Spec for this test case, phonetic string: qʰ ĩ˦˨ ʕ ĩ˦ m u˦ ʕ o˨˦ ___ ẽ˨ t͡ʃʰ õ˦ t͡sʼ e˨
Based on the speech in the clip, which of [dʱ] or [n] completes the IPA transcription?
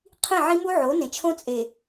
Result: n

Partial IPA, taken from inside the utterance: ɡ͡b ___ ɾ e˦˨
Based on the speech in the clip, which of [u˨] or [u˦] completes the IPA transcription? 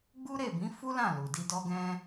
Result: u˦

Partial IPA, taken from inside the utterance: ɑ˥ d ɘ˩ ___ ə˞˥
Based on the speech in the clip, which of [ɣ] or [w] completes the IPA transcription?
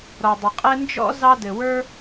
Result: w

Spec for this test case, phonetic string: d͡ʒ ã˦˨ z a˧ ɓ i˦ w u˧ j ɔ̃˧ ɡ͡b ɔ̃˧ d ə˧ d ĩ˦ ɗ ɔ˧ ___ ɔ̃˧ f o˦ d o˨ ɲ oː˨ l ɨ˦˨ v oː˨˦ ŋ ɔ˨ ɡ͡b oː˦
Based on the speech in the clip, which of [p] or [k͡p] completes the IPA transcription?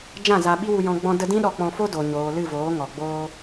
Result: k͡p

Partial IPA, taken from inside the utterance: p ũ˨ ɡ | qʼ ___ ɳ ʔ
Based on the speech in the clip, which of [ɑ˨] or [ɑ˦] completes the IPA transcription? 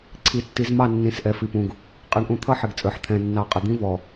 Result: ɑ˨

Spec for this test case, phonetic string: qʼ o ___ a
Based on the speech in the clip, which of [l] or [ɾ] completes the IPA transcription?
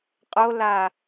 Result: l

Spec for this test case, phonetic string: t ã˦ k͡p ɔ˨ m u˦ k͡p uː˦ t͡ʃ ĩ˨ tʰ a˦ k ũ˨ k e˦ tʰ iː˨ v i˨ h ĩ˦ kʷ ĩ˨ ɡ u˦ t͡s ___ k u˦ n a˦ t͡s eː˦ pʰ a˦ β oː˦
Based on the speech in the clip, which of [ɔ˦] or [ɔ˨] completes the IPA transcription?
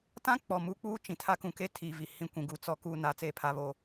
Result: ɔ˦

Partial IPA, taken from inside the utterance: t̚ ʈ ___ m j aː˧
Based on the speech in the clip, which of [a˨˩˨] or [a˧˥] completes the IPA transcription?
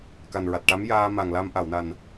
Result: a˧˥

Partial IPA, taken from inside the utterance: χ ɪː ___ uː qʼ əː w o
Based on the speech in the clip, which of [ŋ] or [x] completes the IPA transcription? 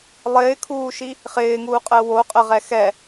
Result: ŋ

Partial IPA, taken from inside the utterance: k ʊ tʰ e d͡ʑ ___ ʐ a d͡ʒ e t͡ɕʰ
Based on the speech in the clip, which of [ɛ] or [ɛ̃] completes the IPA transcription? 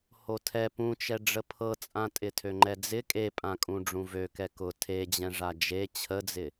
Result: ɛ̃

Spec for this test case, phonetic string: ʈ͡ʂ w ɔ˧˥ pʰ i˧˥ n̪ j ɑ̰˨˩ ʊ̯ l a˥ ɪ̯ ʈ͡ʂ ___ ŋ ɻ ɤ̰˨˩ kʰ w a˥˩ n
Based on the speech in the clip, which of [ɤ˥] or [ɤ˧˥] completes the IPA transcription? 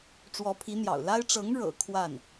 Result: ɤ˧˥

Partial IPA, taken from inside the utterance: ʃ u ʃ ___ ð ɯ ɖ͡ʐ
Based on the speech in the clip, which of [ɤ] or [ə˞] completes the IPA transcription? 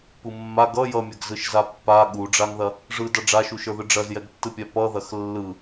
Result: ə˞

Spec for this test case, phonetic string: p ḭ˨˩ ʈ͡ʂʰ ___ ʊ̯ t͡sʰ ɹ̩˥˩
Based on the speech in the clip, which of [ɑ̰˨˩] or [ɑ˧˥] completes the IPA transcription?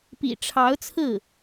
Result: ɑ˧˥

